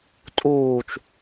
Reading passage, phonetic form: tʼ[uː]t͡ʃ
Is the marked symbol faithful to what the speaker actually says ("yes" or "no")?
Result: yes